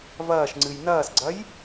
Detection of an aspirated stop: absent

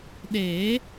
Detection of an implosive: present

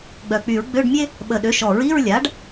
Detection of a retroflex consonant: present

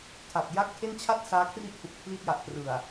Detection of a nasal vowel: absent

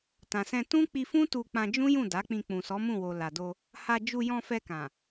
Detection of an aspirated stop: absent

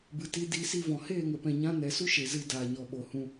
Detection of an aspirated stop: absent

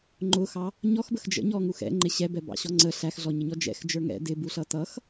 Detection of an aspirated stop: absent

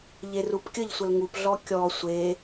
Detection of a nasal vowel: absent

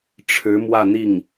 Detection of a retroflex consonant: present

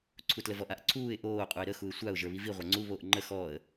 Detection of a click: present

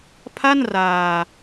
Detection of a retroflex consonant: absent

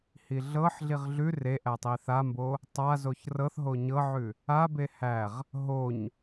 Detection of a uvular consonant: present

